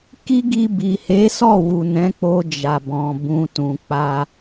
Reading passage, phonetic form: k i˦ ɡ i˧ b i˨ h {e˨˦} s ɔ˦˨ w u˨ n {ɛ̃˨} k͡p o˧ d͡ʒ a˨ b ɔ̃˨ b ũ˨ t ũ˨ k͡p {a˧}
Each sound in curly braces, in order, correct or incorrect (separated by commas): correct, incorrect, correct